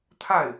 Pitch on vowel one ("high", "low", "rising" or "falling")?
falling